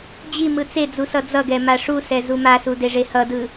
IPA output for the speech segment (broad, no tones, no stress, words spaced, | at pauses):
d͡ʑi mɯt͡sed͡zu sʌd͡zʌɡɛ maʂusɛ zumasu deʐehʌdɯ